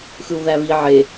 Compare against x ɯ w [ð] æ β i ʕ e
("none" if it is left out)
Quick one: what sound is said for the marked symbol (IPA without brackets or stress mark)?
ð